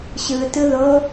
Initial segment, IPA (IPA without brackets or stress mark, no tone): ɕ